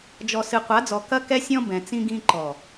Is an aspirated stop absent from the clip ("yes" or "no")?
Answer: yes